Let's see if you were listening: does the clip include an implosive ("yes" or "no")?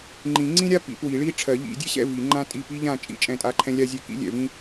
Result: no